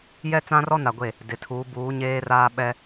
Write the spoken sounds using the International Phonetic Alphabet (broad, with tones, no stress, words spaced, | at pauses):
jɛ˦t͡sã˦rɔ˦na˨ ɡʷe˦˨ | dɪ˨tʰuː˨˦buː˨˦ ɲeː˦raː˦ɓɛ˦